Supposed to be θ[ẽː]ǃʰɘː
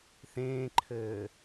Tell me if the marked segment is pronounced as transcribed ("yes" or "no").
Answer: yes